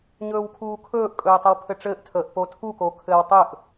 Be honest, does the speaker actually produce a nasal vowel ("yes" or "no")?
no